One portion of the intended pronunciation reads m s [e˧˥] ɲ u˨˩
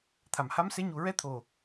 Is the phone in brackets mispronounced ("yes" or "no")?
no